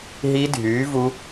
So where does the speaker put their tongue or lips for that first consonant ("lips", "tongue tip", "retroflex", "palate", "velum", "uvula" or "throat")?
throat